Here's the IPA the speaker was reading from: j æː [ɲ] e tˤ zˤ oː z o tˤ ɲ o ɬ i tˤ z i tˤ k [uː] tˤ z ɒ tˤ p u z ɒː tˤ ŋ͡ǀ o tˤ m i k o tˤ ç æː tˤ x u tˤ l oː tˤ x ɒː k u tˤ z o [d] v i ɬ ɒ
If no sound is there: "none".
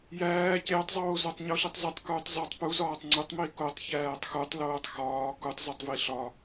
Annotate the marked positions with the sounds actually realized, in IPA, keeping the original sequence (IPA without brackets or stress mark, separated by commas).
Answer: c, uː, tˤ